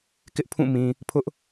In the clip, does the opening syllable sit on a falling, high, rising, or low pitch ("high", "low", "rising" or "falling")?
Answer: high